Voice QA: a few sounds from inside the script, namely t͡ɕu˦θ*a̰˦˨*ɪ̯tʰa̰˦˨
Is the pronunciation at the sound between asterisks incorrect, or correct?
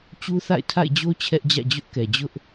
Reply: correct